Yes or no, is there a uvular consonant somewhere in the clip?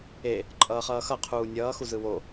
yes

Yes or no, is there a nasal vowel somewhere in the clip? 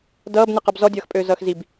no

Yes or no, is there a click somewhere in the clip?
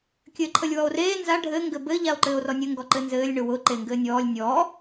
yes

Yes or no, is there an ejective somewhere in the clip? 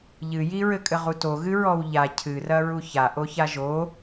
yes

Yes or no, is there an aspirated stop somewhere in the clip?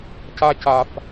no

